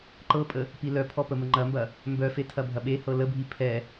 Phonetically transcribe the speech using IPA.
ǃ ɤ pʼ ə | p i l œ pʰ ɔ p ə m ə ŋ͡ǃ ɐ m b ɐ | m b œ f e tʰ ɐ bʱ ɐ ɓ e h ɤ l ə bʱ i pʰ ɛ

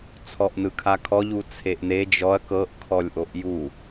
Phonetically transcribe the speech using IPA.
t͡sʰ ɔ ʔ n ɯ kʰ a kʰ ɔ ʎ u t͡sʰ e ʔ n e d͡ʒ ɔ ɐ̯ k ɤ ʔ kʰ ɔ lʲ ʔ o ʔ j u

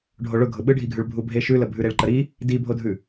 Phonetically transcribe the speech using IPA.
ɖʱ o ɭ ʊ ɡʱ ʊ ɓ ɯ ɖʱ i ɡʱ ʉ ɭ bʱ u bʱ e ʃ ʉ l ə bʱ ʉ ɾ e ɭ ǃ ə ɾ i | d i bʱ o dʱ ʉ

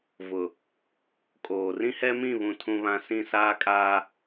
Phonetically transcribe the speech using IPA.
v ʊ˨ | kʼ oː˨ r ĩ˦ h ɛ˦ m ĩ˦˨ β ũ˦ tʰ ũ˦ β ã˦ s ĩ˦˨ s aː˦ kʼ aː˦

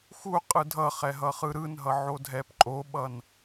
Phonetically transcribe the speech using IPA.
x u qʼ ɯ dʱ ʌ χ ɛ ɦ ʌ χ ɯ ɾ ɯ n ɦ ʌ ʕ o dʱ ɛ p ǃʼ o ɓ ʌ n

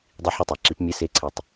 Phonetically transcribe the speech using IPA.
dˤ i˧ ħ y˧ tˤ æ˩ ǁ i˨˩˦ p mʲ e˧˥˧ s e˧˥˧ ǀʰ e˧˩ tˤ

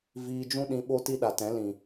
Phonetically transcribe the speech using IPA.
v iː˧ d͡ʒ ũ˦ ɗ ĩ˧ ɓ o˦ t i˦ ɗ a˨ t ɛ̃˨˦ l ĩ˨

